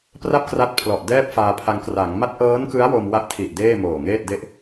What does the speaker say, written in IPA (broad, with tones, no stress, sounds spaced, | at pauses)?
p r a˥˩ p̚ k r a˦˥ t̚ pʰ l ɔ˨˩ ʔ d ɛː˥˩ p̚ f aː˧ pʰ a˧ ŋ k r a˩˦ ŋ m a˦˥ t̚ ʔ ɤː˦˥ n k ɯ˦˥ a̯ w o˧ m w a˦˥ ʔ tʰ i˨˩ ʔ d eː˥˩ m oː˨˩ ŋ eː˥˩ t̚ d e˥˩ ʔ